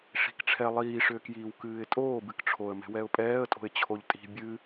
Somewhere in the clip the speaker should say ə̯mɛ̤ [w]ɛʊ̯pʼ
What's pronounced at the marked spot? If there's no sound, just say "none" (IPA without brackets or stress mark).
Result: w